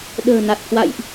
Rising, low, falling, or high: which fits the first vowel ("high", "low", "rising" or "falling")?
low